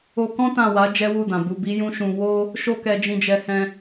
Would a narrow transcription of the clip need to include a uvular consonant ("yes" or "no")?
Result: no